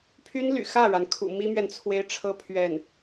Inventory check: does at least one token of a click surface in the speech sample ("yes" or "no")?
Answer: no